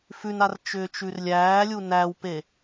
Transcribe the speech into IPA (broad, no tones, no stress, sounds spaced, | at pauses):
f ʉ n a r t͡ʃ ʏː t͡ʃ ʉ r lʲ æː lʲ u n æ w p e